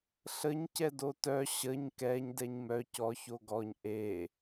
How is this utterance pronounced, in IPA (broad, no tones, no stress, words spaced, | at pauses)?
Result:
ɬəɲ cɛdotœ ɕəɲ kɛɲ dɛɲmœ cɔ çoɡɔɲ ʔe